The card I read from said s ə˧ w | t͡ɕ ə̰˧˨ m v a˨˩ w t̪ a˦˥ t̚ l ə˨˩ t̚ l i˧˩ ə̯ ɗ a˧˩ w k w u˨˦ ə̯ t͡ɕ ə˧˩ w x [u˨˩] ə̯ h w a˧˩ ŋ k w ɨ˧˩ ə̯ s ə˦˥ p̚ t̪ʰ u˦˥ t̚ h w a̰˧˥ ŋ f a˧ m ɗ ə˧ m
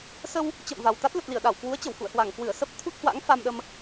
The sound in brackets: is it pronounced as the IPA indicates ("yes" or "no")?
no